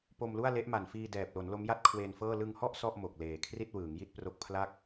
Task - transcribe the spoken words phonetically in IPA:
po˧mlu˥˩a̯le˦˥ʔma˨˩n fiː˧dɛː˨˩p̚lo˩˦n lo˦˥mja˥˩t̚kʰweː˧nfɤː˥˩ lɯ˧ŋhɔ˥˩ʔ sɔ˥˩ʔ mo˨˩k̚leː˨˩ kʰri˥˩t̚wɯː˩˦ŋji˥˩t̚pro˦˥k̚ pʰla˥˩k̚

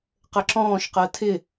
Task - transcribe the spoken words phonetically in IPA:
qəǁɔ̃ːʃqɜ tʰɪ

